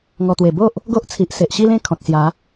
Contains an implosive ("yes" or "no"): no